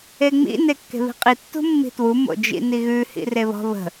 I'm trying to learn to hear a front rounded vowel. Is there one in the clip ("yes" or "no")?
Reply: no